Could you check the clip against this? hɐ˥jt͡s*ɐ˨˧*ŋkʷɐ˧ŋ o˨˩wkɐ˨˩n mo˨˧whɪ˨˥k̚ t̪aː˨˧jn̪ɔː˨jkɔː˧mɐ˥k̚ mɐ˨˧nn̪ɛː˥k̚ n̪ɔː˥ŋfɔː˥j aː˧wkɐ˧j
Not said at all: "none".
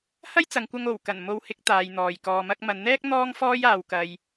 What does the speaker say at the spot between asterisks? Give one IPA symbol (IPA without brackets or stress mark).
ɐ˨˧